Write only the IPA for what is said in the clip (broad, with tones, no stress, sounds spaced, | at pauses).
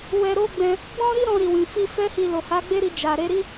w ɛ˧ ɾ o˦ ɡ͡b ɛ̃˧ | ɡ͡b ɔ̃˦ ɾ i˦ ɾ ɔ̃˧ ɾ i˨ w ĩ˨ f i˧ f ɛ˦ h i˧ l o˨ h a˨˦ ɡ͡b e˦ ɾ i˧ d͡ʒ a˨ ɾ e˨˦ ɾ i˦